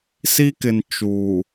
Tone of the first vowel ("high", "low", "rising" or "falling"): high